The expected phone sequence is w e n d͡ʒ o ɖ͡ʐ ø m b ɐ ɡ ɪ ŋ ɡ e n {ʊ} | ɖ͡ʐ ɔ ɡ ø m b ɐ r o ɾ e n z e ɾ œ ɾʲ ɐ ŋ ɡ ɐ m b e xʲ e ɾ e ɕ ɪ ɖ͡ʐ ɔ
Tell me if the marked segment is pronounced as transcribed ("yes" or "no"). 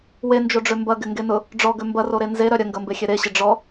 yes